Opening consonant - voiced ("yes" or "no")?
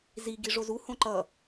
yes